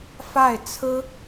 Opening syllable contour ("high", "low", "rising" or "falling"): falling